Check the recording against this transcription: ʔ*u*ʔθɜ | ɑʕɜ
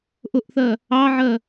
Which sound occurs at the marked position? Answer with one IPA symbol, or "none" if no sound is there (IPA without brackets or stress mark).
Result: ʊ